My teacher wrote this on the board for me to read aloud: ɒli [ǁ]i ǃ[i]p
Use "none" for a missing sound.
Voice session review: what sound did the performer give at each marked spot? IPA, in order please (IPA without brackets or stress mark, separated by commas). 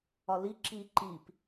ǁ, i